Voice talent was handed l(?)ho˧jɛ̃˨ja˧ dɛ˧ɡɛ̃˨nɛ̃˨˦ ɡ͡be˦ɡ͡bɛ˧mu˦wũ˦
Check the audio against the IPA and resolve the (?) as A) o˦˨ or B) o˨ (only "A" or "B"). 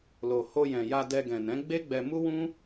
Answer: B